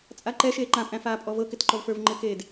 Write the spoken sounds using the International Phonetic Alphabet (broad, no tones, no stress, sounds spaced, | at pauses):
t͡sʼ a ǃ ɛ ʃ eː ǃ ã pʼ æ̃ f aː pʼ ɔ v ɤ k ɪ t ǃ ɔ v f ə˞ v ŋ͡ǃ ɪ k eː d